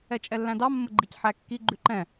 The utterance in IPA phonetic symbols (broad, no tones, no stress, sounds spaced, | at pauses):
ɛ t͡ʃʼ ɛ lː æ̃ d ɑ mː ə ɡ͡ǃ i c ħ æ kː i ɡ͡ǃ ʉ ǃ ɛ̃